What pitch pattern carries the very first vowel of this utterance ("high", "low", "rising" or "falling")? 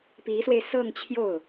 rising